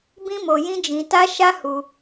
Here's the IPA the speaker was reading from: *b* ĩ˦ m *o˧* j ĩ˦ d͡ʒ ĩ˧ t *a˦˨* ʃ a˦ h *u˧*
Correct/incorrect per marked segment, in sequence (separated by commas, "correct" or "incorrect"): correct, correct, incorrect, correct